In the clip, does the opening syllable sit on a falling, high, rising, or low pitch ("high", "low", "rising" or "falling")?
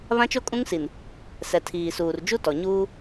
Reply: high